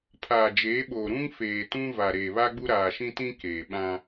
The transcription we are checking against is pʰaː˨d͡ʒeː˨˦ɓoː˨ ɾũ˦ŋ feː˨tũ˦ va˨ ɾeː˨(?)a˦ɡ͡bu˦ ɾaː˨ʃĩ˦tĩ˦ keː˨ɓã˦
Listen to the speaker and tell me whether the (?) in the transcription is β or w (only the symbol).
β